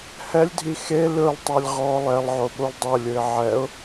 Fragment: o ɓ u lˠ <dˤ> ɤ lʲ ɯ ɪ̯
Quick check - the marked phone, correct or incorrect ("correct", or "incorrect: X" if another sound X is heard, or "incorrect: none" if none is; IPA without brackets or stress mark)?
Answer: correct